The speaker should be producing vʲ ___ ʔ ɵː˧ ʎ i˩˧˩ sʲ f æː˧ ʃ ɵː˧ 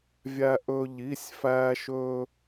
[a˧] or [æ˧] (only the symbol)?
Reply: æ˧